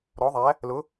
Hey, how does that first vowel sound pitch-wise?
rising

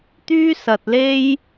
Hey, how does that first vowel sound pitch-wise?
high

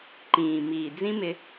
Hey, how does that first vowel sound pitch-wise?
low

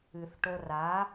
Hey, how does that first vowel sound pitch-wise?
low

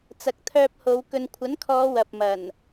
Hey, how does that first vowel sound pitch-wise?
low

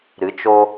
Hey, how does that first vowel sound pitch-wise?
rising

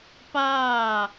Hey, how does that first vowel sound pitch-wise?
falling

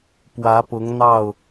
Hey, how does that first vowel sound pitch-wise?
rising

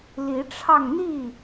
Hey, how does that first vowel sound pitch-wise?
rising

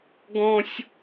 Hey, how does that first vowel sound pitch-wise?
high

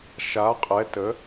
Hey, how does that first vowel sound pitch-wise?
rising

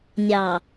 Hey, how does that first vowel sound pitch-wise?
low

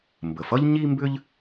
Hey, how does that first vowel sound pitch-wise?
low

